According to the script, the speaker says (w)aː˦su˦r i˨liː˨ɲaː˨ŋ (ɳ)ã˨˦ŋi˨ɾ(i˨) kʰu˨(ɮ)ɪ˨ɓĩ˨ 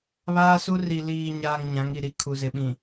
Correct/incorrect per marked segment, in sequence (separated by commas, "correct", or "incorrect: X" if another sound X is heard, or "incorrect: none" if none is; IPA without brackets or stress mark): incorrect: β, incorrect: ɲ, incorrect: i˦, incorrect: z